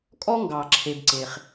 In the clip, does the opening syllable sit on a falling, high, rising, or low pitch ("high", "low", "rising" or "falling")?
high